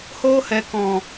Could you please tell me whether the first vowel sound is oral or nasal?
oral